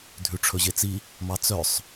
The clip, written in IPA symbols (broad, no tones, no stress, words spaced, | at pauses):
dʱʉʈ͡ʂʰɵʑet͡si | mɑt͡sœsˤ